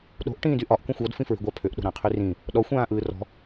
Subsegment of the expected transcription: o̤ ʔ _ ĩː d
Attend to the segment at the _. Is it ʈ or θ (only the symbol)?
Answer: ʈ